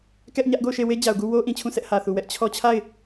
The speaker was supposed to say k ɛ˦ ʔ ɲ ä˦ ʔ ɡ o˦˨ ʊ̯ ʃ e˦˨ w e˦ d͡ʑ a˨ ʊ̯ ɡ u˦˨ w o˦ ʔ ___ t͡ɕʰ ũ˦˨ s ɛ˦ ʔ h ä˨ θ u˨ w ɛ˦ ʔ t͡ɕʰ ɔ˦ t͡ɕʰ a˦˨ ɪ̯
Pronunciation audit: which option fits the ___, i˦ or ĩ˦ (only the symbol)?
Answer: ĩ˦